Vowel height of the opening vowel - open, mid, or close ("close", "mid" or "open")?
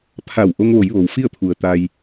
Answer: open